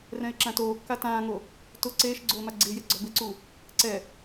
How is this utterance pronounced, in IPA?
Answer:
rɛ̃ɪ̯ǁãtoːkːa tãːŋo | tʊ ǀeːʃ ɡ͡ǀoːmaɡ͡ǀɪːje ɡ͡ǀɔbɪǀu | ǀɛ

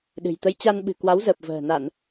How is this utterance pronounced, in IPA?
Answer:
ɗɨ̤˨˩jt̪ə˧j t͡ɕa˧nɓɨ̤˨˩ kwa˨˦wzəː˨˩p̚və̤ː˨˩ na˧˩˨n

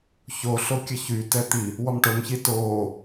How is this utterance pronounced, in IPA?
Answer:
çoɬo kʲəçytɛ t̪i | wɔmʈomçi toː

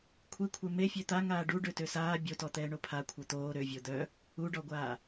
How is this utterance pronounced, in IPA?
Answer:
kʷʰikʷʰɛ me fʲøt̪a ŋaːɖu ɖøtøsaː bʲotɔ t̪ɛːɳopʰa kʷʰœt̪oː ɾøvʲo d̪œ | uɖɔɡʷaː

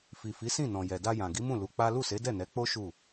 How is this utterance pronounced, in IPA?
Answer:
fi˨fi˨˦sĩ˦˨nɔ̃˨ jɛ˨da˧jã˨ ɡi˨˦mũ˦˨ lu˨˦k͡pa˦ lu˦˨se˨˦dɛ˦˨ nɛ˨˦k͡po˦ ʃu˦˨

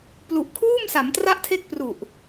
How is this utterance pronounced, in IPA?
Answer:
plu˨˩ʔkʰuː˥˩msa˩˦m tra˦˥ʔtʰe˦˥k̚pru˨˩ʔ

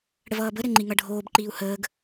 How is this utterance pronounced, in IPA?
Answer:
ɽəvʌːbə ɾɘŋ͡ǃiŋʌɖʱoːb ǃiːu̯həːɡ

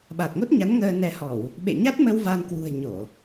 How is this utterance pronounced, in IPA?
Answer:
ɓa˨˩t̚ŋo˦˥t̚ɲa˨˦n ŋəː˧nɛ˧hɔ˧˩˨w | ɓḛ˧˨ɲa˦˥t̚mə˧w va˧nkwṳ˨˩ə̯ ɲo˧˩˨

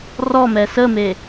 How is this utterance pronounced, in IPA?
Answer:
rɔmɛ səme

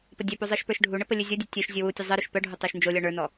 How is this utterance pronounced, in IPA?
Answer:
pədʲœpu zˤə˞ʃpə˞ʃɖʱuɳə pəlʲɨzʲɔdʲɨ tʲœʃ zʲowutʲə zˤɨɾuʃ pœɖʱu tˤə˞ʃnd͡ʒolʲɔ ɳə˞nɔ

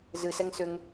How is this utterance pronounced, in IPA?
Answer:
zɨsɛŋ sʏŋ

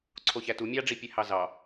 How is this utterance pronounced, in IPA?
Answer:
ǀʰoçætu mʲɑɖ͡ʐipʲe hɑzɑ

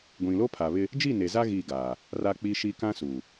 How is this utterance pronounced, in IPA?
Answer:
ɡʷĩ˨lo˦pʰa˨βɪ˦ | d͡ʒi˦˨ne˨za˦ ɣi˦˨ ɡaː˨ | ra˦k͡pi˦ʃi˦ kã˦su˨

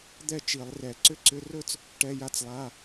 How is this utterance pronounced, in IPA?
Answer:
d̪ɛ˥˧t͡ʃi˧˩˧lˠrɛ˧˩˧ ǀʏ˦˥ǀʏ˧˥˧rɵ˥˧t͡s | ʈɛ˧˥˧ja˦˥t͡slˠa˧˥˧

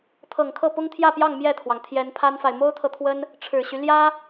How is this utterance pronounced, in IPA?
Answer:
t̪ʰɤ˨˩ŋkʰɤ˥˩ pʊ˥ŋt̪ʰjä˥˧pjɑ˥˧ŋ mjɛ˥˩t̪ʰwɑ˩ŋ t̪ʰjɛ˧˥npʰa˥nfa˨ɪ̯ mo˥ʊ̯t̪ʰɤ˨t̪ʰwə˥n | ʈ͡ʂʰɻ̩˨˩ɕy˦ ljä˥

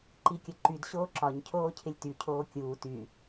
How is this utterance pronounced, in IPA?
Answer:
ǃikʲəǃyd ɕoːǁɒɲ cʰoːcʰɪlʲty cʰoːkʲuː ty

